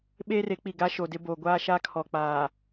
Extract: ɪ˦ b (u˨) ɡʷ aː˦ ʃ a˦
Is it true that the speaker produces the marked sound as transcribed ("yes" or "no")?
no